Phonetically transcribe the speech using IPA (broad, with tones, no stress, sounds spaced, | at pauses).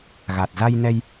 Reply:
ɣ a˨˩ t̚ z a˧ j n ɛ˧ j